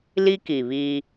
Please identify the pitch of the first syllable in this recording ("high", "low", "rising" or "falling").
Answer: high